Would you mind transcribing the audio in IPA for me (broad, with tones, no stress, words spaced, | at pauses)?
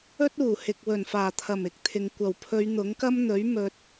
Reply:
ɵ˥t̚uː˨˩ hɪ˨k̚wɵ˨˩nfaː˨˩t̪ʰɐ˨˩m ɪ˨˥k̚t̪ʰɪ˨ŋ kʷɐ˨˩wpʰɵ˨˧ɥ n̪ʊ˨˥ŋkɐ˥mn̪ɵ˨˥ɥ mɵ˨t̚